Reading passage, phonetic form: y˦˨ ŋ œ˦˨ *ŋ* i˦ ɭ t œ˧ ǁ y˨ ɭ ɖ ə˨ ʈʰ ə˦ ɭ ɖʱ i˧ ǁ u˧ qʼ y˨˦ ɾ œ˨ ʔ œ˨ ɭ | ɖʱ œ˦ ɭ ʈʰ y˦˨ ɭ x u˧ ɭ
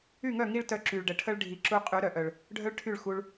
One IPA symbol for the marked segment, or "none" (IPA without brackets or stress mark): ŋ